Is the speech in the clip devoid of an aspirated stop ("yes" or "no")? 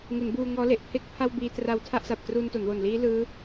no